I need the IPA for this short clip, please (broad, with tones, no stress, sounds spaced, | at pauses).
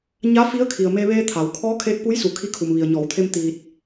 ɲ a˧˥ f i˧˥ ə̯ kʰ i˩ ə̯ m e˧ ʋ eː˧ t̪ʰ a˩ w kʰ ɔː˧˥ kʰ eː˧ k̚ p u˧˥ j s u˩ kʰ i˧ kʰ u˩ m ʋ i˩ ə̯ ɲ ɔː˩˧ w t̪ʰ e˧ m t̪ iː˧ t̚